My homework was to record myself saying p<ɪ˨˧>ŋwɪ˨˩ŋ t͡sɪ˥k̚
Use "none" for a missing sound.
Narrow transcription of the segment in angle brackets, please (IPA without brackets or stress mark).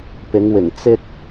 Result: ɪ˨˧